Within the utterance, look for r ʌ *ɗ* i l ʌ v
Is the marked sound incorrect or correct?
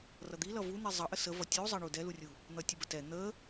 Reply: incorrect